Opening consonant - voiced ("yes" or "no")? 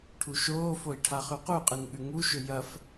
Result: no